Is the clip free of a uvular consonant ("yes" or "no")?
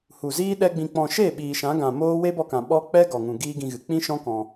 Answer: yes